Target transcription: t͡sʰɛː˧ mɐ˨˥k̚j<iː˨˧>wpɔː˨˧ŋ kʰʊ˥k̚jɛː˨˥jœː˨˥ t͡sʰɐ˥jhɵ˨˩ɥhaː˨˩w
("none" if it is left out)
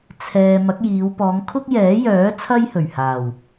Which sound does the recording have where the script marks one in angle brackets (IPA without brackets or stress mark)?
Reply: iː˨˧